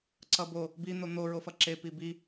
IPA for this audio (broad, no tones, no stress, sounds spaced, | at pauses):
ǀ ʌ b o | b i n̪ o n̪ o ɹ o f ʌ ǁ e p i b i